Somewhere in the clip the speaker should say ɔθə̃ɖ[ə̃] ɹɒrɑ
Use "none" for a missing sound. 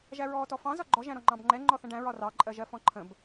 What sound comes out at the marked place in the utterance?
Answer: æ̃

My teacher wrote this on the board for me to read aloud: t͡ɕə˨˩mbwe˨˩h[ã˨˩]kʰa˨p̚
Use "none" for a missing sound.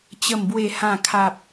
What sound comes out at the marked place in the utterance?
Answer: ã˨˩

